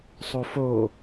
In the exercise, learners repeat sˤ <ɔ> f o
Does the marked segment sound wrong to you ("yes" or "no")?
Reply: yes